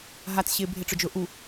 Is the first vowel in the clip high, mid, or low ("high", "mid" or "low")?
low